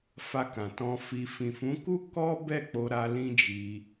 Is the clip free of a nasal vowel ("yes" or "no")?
no